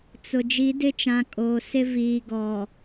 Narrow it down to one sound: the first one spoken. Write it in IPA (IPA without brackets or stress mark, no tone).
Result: t͡s